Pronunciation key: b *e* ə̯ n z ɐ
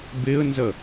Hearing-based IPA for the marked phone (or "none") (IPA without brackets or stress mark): e